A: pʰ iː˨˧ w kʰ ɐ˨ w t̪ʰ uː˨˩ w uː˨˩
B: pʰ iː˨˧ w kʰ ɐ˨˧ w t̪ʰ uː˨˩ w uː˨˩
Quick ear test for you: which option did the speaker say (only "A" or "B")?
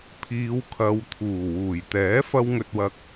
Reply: B